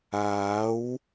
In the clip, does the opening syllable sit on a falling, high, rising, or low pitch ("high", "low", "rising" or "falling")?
rising